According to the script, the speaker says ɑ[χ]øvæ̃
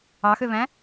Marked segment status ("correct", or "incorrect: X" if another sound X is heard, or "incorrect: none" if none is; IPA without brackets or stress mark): incorrect: x